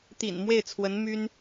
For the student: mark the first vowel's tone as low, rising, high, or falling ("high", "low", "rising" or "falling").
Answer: low